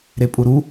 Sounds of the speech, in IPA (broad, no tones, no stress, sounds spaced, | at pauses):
ɾ e pʼ u ɾ u